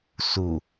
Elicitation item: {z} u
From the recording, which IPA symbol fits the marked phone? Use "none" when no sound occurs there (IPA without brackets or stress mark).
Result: s